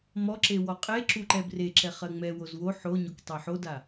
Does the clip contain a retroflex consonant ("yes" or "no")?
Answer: no